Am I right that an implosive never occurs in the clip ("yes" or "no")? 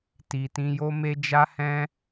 yes